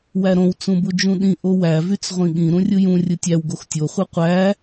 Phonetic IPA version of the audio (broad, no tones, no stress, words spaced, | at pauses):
wæɾõw t͡sũbud͡ʒũɗĩ ʔowæ vyt͡sʁʷĩɠĩ ɾũrʲɯjũ rʲɯtʲæw ɡoxtʲo χʷɯqʷæ